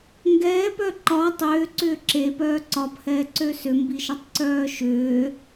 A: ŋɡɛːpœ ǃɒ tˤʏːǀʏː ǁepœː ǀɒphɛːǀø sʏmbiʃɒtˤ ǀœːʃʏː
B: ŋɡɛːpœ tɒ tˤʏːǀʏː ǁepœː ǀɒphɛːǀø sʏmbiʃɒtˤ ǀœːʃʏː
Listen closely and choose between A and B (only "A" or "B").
A